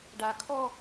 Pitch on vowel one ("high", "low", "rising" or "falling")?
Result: low